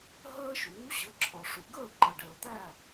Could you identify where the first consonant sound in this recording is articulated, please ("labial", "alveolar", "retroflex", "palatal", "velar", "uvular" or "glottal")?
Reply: glottal